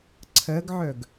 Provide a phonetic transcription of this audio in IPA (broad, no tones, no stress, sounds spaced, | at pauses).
ǀʰ ɜ ɡ ʕ œ ɡ